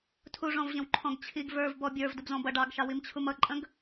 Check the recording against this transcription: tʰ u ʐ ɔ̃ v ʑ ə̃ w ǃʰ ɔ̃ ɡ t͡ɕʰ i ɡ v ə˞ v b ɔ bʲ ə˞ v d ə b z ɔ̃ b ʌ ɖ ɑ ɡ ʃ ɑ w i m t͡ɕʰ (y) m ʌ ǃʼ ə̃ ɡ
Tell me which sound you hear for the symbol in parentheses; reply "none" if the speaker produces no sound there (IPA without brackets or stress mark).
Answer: u